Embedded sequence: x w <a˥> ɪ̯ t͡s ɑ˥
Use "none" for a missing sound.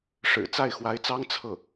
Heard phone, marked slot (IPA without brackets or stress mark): a˧˥